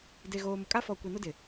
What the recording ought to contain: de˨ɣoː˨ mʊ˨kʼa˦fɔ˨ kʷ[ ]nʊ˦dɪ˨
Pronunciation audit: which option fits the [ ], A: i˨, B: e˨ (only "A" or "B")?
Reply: A